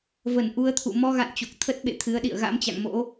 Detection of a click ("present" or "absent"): absent